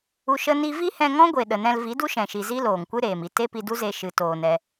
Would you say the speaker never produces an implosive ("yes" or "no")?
no